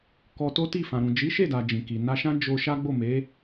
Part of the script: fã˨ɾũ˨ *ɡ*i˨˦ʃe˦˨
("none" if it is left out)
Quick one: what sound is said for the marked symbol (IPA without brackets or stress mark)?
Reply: d͡ʒ